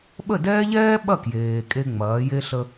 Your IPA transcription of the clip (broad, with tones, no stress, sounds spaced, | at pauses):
ɓ ə˥˩ d ɛː˥ ʎ ɛː˥ ɓ ɐ˥˩ k j eː˩ kʼ e˧ ŋ͡m ɐː˩˧ j e˧ ɬ ə˧